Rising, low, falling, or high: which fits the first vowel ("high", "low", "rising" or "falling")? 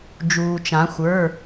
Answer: low